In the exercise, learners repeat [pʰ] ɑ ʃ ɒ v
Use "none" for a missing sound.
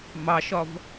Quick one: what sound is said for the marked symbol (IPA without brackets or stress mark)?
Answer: m